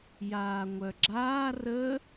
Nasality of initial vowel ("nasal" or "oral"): oral